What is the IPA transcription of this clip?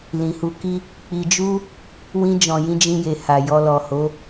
lĩ˨hu˨˦ki˦ | k͡pi˧d͡ʒu˦ | wĩ˧ d͡ʒɔ̃˨jĩ˨˦d͡ʒĩ˧je˨ ha˨jɔ˧lɔ˨ho˨˦

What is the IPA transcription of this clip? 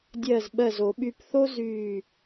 dʲɜ˧˩zɓɜ˧˩zo˩˧ɓy˧p θo˥z y˧˩

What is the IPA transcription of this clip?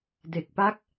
de˨˩k̚pa˦˥k̚

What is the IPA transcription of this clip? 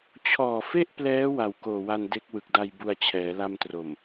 t͡ɕʰɔː˨˩fe˥˩ʔ plɛː˦˥ wa˨˩wkoː˨˩wa˧n de˦˥k̚wɯ˨˩k̚da˧j bu˧a̯t͡ɕʰɛː˩˦ la˧mtro˨˩m

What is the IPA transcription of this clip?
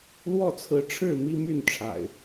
lwɔ˥˨t͡sʰɹ̩˨˦ʈ͡ʂʰɻ̩˥˨ mi˦my˥˨nʈ͡ʂʰa̰˨˩ɪ̯

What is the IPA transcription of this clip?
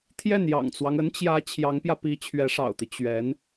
t̪ʰjɛ˥˩njɑ̰˨˩ŋt͡swɑ˦ŋ ə˧˥nt͡ɕjä˧˥ t͡ɕʰjɑ˧˥ŋpjä˧ pi˧˥ t͡ɕʰɥɛ˧˥ʂɑ̰˨˩ʊ̯t̪i˦ t͡ɕɥɛ˧˥n

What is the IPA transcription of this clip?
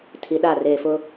tʰi˨ɗa˦˨ reː˨fʊ˦

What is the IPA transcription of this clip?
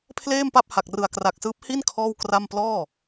pʰleː˥˩mpa˥˩p̚ ha˨˩k̚rɯ˨˩a̯kra˨˩k̚sɯː˦˥p̚ hi˥˩n kʰɔː˥˩wkra˥˩m plɔː˥˩

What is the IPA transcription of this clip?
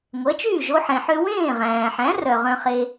ŋʷɛ˩˥t͡ʃyː˥˩ ʒo˧ħɛ̃˩ħø˧ wẽː˥˩ʁæ̃ː˩ħæ̃˩˥rœ˩ ʁœ̃˧χe˧

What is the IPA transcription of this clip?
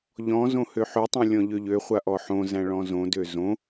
ʎɔ̃zõ høħøtˤõ lʲɔ̃ʎøʎøχʷa ʔɔħõzæ̃ ɭɔ̃zõdø zõ

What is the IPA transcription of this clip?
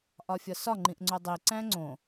ʔɒfʲɒsɒ ŋ͡ǃĩʔŋ͡ǀodˤi ǀæ̃ŋ͡ǀõ

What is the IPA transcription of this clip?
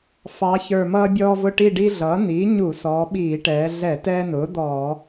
fɑ˩˧çə˞˨˩ mʌː˦bʲɔː˦vʊ˦ ʈi˦˨ɖi˦ɮʌː˩˥ niː˩˥ ɲu˧˩˧sɔː˩˧ɓiː˧˩˧ʈɛː˩˧ ɮɛ˧˩˧tɛː˦nʊː˩˥d̪ɔː˧˩˧

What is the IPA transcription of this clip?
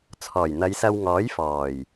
t͡sʰɔː˨˩jn̪ɐ˨˧jsɐ˧wŋɔː˨˥j fɔː˨˩j

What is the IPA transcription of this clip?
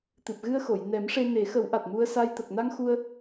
t̪ɨ˨˩p̚ɣɨ˧ə̯ xo˨˩˨jnɛ˨˩˦mʂe˧ ne˨˩˦xə˨˩˦wʔa˨˩t̚ mu˧ə̯sa˧j t̪ə˨˩k̚na˧ŋ xu˧ə̯

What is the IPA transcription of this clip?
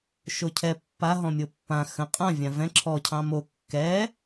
ʃocʰɛ pːa ɦɔ̃mʲopːã xə̃ qʼã vʲãvɛ̃ ǁʰɔ cʰɑ̃mo kːɛ

